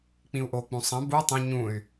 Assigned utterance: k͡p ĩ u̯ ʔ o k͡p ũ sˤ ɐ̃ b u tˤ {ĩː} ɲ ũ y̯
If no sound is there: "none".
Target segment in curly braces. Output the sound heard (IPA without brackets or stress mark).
ĩ